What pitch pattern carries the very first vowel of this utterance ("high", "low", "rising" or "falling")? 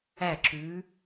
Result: falling